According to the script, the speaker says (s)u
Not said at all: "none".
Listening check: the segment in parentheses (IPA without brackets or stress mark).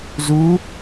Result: z